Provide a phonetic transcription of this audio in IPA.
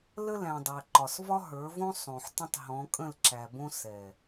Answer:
l ə˦ l æ̃˨ dˤ æ˨ ǃ ɒ˨ s v ɒ˦ ɦ ə˞˨˦ v õ˦ sˤ õ˨ ħ t ə̃˦ tˤ ɦ ɔ̃˨˦ kʼ ə̃˦˨ l ǁ æ˨ b õ˦ s ɛ˨

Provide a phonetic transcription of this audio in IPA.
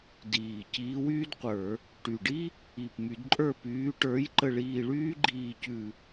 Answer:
d iː˨˩ c iː˨˦ w yː˥ d qʷ ə˞˧˩˧ | ʈ y˨˩ ɖ i˥ | i˨˩ p m y˧˩˧ d ǃʼ ə˞˦˨ p yː˨˦ ʈ ə˞˨˦ j ǃ ə˦˨ ɭ iː˦˨ ɭ yː˥ ɡ͡ǃ iː˦˨ c ʉ˦˨

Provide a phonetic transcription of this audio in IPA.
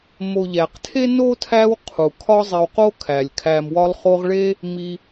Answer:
m o˨ ʎ æ˩ q tʰ e˥ n o˥ tʰ æ˦ w qʰ u˩ kʰ ɒ˦ zˤ e˨ w q o˦ kʰ æ˩ lʲ kʰ æ˨ m w ɒ˦ lˠ χ o˦ ʁ ɭ e˦ | m i˨

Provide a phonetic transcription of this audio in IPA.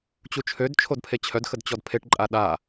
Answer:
t͡ɕ u t͡ʃʰ ø d t͡ʃʰ o d pʰ e t͡ɕʰ œ d x ə d t͡ɕ ɔ d pʰ e ʈ ǃʼ a ɗ a

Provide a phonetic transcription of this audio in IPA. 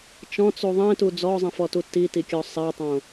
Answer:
t͡ʃ ɔ̃ t͡s u ðˤ ẽ t u d͡z ɔ zˤ ĩ f ɔ t u t i t i kʲ ɔ sˤ e tˤ õ

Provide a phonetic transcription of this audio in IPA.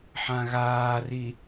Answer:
ħ ã ɣ aː r i

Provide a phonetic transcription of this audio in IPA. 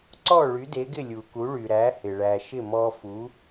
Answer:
ǀ ɔ˥˩ ɭ y˩˥ d e˩˥ ɡ ɪ˥˩ lʲ u˩ k u˩˥ ɭ y˩ ɾ æ˩˥ h ɪ˩ ɭ æ˩ ʃ ɪ˥˩ m ɔ˧ f u˩˥

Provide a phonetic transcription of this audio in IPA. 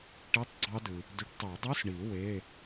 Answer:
ʈ i˧˥˧ tˤ ɡ͡ǀ ɑ˦˥ d ɯ˨ | d y˨˦ ʈ tˤ ø˨˩˦ dˤ ɯ˧˥˧ s ɳ i˨˩˦ w e˧˥˧

